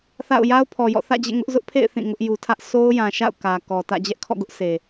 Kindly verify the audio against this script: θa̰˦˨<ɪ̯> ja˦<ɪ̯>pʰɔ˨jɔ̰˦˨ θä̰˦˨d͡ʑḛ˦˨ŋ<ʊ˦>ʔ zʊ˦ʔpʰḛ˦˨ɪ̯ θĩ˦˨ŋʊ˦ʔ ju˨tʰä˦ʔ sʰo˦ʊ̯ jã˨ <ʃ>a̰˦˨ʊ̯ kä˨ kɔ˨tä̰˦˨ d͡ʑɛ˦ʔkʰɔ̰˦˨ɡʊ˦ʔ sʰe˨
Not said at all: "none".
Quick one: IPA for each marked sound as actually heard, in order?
ʊ̯, ʊ̯, ʊ˦, ʃ

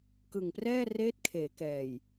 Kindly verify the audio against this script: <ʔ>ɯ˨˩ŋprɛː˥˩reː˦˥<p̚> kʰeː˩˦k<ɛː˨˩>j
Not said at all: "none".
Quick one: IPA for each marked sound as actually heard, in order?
k, t̚, ɛː˨˩

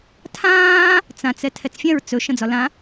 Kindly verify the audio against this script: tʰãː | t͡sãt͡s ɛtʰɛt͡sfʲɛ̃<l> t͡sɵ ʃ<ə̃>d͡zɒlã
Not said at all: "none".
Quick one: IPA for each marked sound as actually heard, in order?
ɹ, ə̃

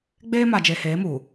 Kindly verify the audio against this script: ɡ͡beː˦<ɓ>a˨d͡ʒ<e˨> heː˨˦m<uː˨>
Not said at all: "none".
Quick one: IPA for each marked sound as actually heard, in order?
m, e˨, uː˨

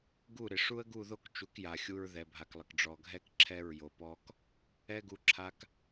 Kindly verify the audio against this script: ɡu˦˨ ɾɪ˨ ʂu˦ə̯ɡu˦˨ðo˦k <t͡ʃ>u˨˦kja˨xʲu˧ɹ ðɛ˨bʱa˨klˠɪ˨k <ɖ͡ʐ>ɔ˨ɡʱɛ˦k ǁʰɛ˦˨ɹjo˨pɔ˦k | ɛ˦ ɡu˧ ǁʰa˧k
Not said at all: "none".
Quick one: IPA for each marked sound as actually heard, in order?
t͡ʃ, ɖ͡ʐ

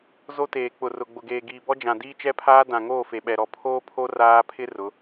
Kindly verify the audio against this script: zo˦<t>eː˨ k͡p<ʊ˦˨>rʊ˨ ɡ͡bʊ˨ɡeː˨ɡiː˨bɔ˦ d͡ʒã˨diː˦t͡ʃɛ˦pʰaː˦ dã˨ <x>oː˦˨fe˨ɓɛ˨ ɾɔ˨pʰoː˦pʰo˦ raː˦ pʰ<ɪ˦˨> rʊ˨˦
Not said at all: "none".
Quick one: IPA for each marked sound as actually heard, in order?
t, ʊ˨, ŋ, ɪ˦

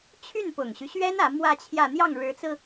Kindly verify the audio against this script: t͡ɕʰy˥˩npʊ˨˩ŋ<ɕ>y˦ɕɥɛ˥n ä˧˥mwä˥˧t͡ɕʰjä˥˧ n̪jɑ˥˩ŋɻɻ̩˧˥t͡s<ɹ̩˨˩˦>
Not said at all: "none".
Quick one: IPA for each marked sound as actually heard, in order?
ɕ, ɹ̩˧

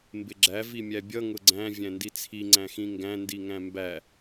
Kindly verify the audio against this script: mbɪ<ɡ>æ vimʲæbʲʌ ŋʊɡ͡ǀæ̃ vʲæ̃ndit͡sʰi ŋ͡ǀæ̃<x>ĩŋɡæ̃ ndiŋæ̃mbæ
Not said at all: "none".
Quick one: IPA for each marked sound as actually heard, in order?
ɡ͡ǁ, x

